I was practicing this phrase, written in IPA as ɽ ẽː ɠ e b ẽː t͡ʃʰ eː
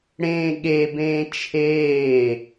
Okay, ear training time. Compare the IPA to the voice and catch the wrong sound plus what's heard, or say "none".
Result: none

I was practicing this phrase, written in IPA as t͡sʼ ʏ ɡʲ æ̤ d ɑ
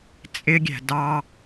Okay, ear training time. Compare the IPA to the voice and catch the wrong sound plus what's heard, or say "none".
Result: ʏ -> ɪ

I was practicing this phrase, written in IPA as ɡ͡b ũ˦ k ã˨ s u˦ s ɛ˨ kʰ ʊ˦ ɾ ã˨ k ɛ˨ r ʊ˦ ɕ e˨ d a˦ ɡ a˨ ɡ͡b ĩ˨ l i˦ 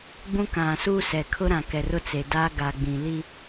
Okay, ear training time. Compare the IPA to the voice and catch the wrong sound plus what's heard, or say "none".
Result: ɕ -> t͡s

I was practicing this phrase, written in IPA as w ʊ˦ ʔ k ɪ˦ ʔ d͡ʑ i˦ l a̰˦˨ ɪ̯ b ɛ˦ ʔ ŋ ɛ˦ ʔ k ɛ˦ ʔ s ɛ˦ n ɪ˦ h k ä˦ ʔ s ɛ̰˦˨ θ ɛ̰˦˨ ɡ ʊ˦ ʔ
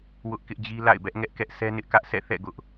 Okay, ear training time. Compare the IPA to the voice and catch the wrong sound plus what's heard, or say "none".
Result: h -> ʔ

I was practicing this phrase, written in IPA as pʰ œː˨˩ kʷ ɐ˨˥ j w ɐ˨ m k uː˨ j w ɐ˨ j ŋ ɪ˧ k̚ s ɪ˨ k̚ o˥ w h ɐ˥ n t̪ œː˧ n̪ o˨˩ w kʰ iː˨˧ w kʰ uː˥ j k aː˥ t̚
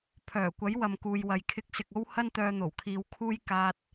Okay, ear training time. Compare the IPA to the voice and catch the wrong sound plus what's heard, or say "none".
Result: ŋ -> kʰ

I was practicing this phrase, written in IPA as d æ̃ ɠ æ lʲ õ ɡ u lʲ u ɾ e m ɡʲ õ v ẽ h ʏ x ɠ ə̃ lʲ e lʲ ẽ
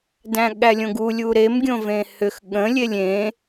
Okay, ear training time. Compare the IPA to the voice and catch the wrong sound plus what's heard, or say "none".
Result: none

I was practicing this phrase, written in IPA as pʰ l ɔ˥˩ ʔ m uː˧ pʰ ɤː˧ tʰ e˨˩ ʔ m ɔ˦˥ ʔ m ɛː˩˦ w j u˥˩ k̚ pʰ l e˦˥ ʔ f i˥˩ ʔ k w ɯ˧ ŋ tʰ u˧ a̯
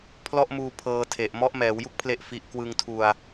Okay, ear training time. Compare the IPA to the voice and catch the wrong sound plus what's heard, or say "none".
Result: none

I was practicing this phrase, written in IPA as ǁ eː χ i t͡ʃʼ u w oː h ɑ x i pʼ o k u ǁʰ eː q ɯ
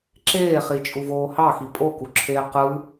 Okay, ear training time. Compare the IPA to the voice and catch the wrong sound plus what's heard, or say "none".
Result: w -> v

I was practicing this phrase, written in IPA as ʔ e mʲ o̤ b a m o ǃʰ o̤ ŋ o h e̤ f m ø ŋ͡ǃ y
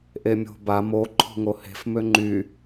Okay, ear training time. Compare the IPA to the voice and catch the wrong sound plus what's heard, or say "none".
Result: none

